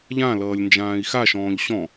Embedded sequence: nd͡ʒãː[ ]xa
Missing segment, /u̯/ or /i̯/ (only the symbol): i̯